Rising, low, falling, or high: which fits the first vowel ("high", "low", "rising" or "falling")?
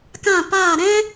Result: falling